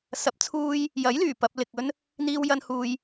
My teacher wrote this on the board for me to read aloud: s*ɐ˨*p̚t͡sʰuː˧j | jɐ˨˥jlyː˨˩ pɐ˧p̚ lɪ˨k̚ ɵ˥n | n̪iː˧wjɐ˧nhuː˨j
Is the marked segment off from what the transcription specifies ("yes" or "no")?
yes